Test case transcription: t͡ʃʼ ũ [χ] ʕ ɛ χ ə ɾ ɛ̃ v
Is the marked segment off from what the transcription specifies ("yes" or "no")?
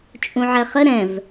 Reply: yes